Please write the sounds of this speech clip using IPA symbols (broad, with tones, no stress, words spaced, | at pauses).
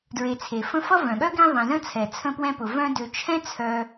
dɹe˨t͡sʰe˩fə̃˦fʌ˥ vœ̃˩ɠœ˥ɡẽ˦ ðˤɛ̃˨zə̃˥t͡sʰɛ˩ t͡sʰə̃˦pwɛ̃˦pʊ˩ vœ̃˦dø˨ t͡ʃʰɛ̃˥t͡sʰœ˨